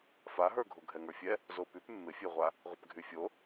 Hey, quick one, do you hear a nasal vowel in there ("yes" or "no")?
no